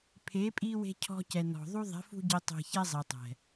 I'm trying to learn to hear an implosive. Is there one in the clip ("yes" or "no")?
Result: no